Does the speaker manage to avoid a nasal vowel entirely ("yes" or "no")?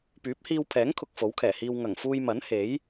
yes